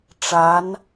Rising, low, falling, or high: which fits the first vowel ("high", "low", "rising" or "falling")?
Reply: rising